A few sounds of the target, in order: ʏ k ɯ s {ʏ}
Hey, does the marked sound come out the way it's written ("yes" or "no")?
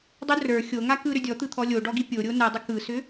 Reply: yes